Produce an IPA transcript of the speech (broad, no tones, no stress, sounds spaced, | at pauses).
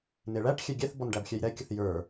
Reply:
n e ɭ æ ʈ xʲ ɛ ɡʲ ɛ θ b ɔ n ɖ æ b xʲ ɛ j ɾ ɛ kʲ ə θ j ə˞